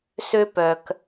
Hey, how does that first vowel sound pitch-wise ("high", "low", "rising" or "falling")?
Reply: high